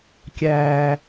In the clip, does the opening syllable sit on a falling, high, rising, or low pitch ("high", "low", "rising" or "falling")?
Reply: high